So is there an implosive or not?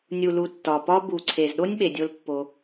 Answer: yes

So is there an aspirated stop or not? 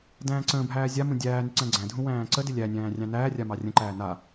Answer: no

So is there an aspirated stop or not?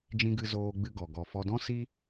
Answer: no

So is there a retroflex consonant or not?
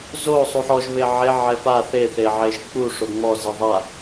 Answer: yes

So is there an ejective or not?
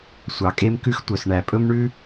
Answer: yes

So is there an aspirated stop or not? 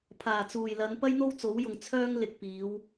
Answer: yes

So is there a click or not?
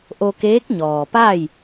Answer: no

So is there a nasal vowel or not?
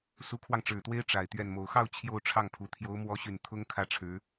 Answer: no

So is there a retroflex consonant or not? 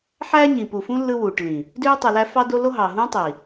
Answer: yes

